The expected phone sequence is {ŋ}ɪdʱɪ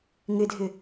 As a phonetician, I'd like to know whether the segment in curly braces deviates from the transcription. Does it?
no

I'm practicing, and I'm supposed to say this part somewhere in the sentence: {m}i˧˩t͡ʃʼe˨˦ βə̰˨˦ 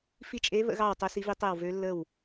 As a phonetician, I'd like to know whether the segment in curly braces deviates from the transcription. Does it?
yes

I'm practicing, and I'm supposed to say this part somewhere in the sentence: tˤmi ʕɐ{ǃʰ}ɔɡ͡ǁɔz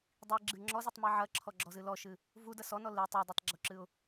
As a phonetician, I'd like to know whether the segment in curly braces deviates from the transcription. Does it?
yes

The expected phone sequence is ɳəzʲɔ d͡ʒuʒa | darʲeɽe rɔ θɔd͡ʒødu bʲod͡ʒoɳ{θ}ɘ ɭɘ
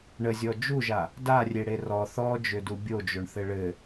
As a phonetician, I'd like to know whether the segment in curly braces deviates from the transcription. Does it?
no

